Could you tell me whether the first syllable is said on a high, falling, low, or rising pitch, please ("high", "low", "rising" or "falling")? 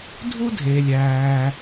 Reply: high